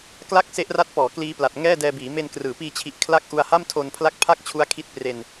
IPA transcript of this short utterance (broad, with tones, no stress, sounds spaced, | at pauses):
k l a˥˩ k̚ s e˦˥ ʔ r a˦˥ t̚ p ɔː˩˦ k l iː˦˥ p l a˨˩ t̚ ŋ ɛː˥˩ d ɛː˧ b iː˩˦ m e˧ n k r ɯː˩˦ p iː˧ t͡ɕʰ i˨˩ ʔ kʰ l a˦˥ k̚ ʔ u˧ a̯ h a˥˩ m tʰ o˧ n pʰ l a˦˥ k̚ pʰ a˥˩ k̚ t͡ɕʰ u˦˥ a̯ kʰ i˦˥ t̚ p r e˧ n